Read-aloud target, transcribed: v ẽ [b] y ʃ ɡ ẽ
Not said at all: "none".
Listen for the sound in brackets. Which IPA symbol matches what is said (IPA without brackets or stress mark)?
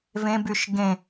b